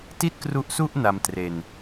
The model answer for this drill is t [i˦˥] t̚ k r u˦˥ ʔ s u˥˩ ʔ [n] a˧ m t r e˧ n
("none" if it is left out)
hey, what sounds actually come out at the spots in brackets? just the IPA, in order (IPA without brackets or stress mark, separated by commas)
i˥˩, n